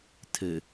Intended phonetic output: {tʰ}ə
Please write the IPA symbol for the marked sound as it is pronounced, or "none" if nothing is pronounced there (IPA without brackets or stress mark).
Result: tʰ